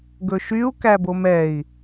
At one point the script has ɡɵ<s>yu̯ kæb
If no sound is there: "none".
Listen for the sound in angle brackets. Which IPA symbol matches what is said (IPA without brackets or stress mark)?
ʃ